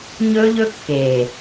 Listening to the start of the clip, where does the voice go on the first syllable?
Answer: high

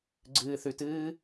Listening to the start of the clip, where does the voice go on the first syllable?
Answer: low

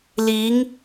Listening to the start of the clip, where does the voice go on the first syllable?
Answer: rising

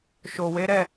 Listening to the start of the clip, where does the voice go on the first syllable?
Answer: low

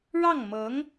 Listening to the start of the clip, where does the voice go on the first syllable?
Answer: falling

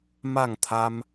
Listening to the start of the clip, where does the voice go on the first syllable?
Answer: falling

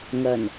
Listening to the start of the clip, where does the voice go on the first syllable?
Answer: low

